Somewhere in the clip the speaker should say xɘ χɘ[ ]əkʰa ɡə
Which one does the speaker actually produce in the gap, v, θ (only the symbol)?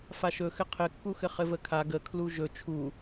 v